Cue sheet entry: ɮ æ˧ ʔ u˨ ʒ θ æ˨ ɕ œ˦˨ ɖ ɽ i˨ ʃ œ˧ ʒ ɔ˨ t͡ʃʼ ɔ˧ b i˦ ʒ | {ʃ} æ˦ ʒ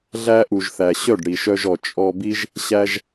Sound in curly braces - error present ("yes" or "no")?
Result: yes